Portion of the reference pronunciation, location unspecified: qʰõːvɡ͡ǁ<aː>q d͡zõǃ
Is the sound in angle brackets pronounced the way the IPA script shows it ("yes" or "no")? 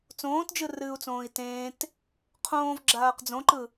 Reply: yes